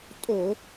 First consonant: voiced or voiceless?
voiceless